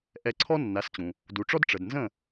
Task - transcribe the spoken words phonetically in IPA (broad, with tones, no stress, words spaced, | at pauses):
ʔɛ˧ǀʰɔ˥ nːa˩˥st͡ɕũ˩ | du˩ʈ͡ʂɔ˥d ʈ͡ʂə˩dnzə̃˥˩